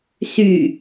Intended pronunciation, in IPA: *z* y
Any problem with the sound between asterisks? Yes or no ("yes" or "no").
yes